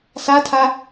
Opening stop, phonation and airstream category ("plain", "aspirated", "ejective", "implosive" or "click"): aspirated